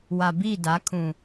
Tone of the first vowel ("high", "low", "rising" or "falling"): low